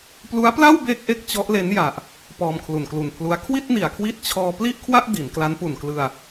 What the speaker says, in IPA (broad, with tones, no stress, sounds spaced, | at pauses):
p l u˦˥ a̯ p l a˥˩ w b eː˥˩ k̚ ʔ e˥˩ k̚ t͡ɕ ɔ˦˥ ʔ l e˦˥ n j a˨˩ ʔ | p ɔː˧ m kʰ l u˨˩ n k l u˨˩ n pʰ l u˦˥ a̯ kʰ w i˥˩ t̚ n i˨˩ a̯ kʰ w i˦˥ t̚ t͡ɕʰ ɔː˧ p l i˥˩ ʔ kʰ w a˥˩ ʔ d i˩˦ n k l a˦˥ n p u˨˩ n k l ɯ˧ a̯